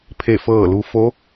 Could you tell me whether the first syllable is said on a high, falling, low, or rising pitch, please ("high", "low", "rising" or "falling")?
falling